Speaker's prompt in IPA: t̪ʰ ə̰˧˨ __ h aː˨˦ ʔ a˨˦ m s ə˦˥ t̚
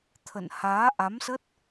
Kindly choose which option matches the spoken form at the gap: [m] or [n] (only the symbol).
n